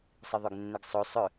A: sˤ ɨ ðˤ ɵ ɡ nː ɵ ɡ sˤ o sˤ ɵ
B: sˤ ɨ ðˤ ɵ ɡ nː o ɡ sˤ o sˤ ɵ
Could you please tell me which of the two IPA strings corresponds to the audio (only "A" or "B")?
A